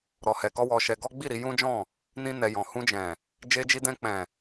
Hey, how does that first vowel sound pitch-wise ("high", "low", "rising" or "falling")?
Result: low